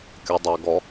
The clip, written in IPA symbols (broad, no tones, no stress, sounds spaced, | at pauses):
kʲ ʌ dˤ æ ɡ ɔ